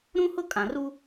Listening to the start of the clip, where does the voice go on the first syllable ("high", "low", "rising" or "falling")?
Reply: high